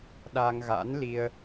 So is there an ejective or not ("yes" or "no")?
no